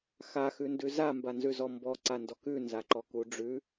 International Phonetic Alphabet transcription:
xaxʉndʉ zambanzʉzɔ mbɔǀandɔk ʉnzaǃɔku ɖ͡ʐʉ

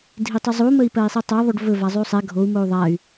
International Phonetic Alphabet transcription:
dʱitˤyzˤu məi̯pɜi̯sˤitˤɜ ðˤoɖvɵ vazˤyu̯sˤɛ ɡʱou̯ mou̯ðˤay̯

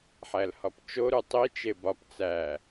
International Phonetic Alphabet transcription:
ħælhɒpt͡ʃo ɾutˤi t͡ʃebɒp t͡sæ

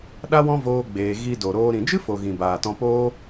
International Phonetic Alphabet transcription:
ɗa˦wɔ̃˦ voː˦ɡ͡beː˧ ɣi˧do˨ɾoː˧ ɾĩ˨d͡ʒɨ˦fo˨ ɣĩ˨baː˨tɔ̃˧ poː˦

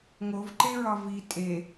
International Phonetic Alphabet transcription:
ŋovǃeɹɒ vi tʼe

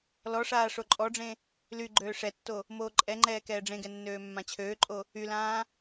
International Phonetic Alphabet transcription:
lɔʂaː ʂoǃʼɔɖ͡ʐẽ | lyɡ͡ǃøː ʂɛtːo | moːǃʼɛŋ͡ǃɛː kɛːɖ͡ʐẽɡɛ nːøːmːãt͡ɕʰøːǃʼo | ylãː

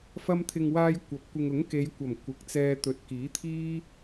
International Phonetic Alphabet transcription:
fɐ˧mt̪ʰɪ˨ŋwaː˧j kʷɐ˨˥p̚kʷɪ˧ŋ ʊ˨˥ŋke˨˧jkʷɐ˨˩m kʷɪ˨˥k̚t͡sɛː˧t̪ɵ˨˥t̚ kiː˨˥t̪ʰiː˥

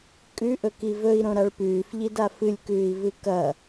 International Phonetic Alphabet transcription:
kʼʉʔɵki vɵi̯ɾõɾaɭ pʉːfʎida fɨlʲkʉːi̯vɨ kɐ

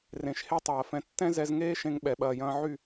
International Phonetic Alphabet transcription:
rẽ˨ʃhe˦tˤɐː˨fɛ̃˧ tːɛ̃˦zɛ˧z ŋeː˦ʃẽ˧ŋɓɛ˨ ɓɐː˨jɐ̃ː˧ʕy˦˨

